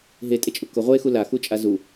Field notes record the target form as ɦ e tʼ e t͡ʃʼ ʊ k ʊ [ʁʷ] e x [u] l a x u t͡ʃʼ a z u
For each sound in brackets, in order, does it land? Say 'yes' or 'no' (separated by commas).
yes, yes